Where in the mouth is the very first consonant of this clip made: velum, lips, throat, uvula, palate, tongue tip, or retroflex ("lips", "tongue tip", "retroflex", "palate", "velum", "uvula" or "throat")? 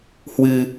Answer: throat